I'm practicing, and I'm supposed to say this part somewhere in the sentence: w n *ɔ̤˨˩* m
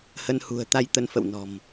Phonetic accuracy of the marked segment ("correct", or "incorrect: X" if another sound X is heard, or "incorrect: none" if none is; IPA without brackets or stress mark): correct